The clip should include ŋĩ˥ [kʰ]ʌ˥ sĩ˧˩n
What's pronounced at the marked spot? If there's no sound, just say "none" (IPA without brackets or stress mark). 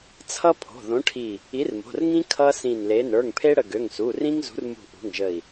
kʰ